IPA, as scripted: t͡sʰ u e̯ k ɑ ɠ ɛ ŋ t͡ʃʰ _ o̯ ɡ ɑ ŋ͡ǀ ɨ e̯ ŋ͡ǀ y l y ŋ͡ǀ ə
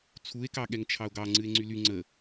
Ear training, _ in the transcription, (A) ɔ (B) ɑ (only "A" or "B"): B